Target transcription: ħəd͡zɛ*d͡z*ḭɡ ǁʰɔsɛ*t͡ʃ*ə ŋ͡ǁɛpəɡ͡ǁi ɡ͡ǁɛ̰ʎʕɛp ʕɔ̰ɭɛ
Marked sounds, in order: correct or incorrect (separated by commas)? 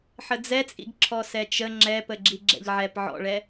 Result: incorrect, correct